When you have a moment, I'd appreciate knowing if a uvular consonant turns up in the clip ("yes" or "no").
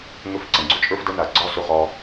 yes